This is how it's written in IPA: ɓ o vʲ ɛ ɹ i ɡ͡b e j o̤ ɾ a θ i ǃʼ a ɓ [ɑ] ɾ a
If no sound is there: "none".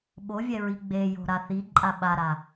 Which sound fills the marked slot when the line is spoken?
a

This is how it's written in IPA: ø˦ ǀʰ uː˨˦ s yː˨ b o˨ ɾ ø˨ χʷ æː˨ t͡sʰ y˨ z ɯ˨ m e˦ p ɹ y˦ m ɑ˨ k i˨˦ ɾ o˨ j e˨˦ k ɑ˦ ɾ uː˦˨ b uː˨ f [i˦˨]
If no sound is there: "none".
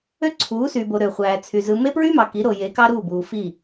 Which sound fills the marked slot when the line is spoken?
i˦˨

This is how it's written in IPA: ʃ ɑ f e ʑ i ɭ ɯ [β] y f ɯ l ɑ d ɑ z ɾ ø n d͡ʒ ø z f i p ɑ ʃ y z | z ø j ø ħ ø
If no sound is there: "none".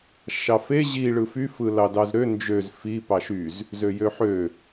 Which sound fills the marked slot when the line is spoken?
f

